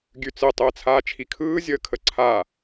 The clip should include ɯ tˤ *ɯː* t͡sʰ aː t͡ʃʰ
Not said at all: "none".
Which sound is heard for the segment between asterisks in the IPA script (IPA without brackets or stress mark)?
ɯː